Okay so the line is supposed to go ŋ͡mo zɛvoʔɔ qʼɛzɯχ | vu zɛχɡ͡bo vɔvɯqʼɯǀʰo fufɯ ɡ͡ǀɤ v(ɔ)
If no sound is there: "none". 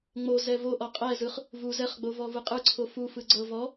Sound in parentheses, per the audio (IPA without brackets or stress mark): ɔ